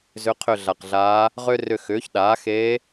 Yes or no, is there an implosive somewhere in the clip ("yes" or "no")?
yes